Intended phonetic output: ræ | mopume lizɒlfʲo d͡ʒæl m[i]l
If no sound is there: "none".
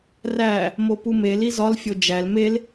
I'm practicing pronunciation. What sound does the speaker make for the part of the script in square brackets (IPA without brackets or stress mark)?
e